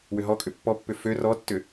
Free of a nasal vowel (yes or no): yes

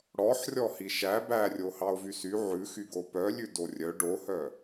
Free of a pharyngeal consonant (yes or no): no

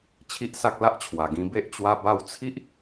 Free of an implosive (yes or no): yes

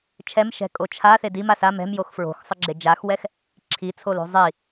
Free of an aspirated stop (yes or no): no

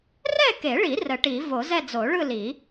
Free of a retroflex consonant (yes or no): no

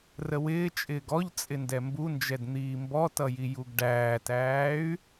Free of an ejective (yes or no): no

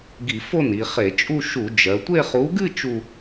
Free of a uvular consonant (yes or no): no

